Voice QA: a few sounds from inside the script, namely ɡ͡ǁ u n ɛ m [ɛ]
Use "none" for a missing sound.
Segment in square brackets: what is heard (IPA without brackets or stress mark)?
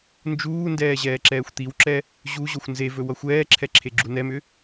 ʏ